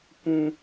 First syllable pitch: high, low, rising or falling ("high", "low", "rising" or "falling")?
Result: high